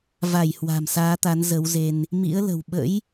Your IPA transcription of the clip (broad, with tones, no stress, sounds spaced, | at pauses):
v a˧˩ j h w a̤˨˩ m s aː˨˦ t̪ a˨˦ n z ə˨˦ w z e˧ n | m ḭ˧˥ ə̯ l ə̤˨˩ w ɓ ə̰˧˥ j